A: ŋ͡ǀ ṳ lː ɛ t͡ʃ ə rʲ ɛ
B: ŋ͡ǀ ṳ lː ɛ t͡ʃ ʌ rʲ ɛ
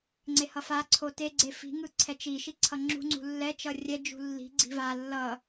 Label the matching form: B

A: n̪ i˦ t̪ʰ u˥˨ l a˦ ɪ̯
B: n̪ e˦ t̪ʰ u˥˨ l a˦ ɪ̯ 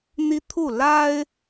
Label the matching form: A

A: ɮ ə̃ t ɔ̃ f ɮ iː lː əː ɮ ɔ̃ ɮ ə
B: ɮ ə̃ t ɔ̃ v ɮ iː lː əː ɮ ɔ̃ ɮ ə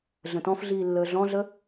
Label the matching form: A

